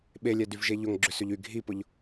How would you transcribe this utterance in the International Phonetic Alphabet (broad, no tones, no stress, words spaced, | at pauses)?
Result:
ɓelʲɛ dyvʒeʎʊŋ ɡ͡ǁʏsʏʎy ɡʱipʊʎ